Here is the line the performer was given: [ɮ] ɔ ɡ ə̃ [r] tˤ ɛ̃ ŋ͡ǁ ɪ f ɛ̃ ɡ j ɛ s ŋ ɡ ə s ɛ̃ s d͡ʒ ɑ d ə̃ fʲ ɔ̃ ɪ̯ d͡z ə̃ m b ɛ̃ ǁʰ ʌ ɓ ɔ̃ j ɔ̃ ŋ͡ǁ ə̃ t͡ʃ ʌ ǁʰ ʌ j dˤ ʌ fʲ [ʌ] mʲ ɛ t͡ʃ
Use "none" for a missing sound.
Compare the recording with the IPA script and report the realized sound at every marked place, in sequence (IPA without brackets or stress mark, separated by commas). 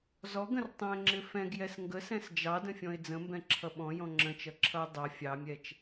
z, r, ɑ